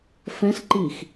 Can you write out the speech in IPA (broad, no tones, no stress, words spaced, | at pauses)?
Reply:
fɛ̃sǃix